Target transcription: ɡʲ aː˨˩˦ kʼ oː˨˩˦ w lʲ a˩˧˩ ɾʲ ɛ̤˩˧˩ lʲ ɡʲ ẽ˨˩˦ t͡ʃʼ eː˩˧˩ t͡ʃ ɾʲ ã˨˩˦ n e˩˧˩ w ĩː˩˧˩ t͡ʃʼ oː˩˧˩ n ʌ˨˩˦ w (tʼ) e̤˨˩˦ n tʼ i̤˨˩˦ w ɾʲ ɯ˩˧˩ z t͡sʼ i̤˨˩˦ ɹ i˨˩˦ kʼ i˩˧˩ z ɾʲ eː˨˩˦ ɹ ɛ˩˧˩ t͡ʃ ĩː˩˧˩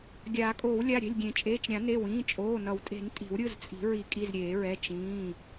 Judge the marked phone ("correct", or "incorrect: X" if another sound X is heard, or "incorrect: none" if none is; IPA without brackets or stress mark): correct